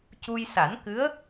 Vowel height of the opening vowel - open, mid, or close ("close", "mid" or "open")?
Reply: close